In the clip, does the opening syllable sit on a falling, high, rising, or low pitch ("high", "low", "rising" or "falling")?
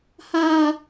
high